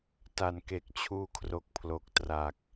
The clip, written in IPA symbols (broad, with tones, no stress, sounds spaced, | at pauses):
t a˨˩ n k e˨˩ k̚ t͡ɕʰ uː˧ kʰ r o˨˩ k̚ pʰ l o˨˩ k̚ t r a˨˩ k̚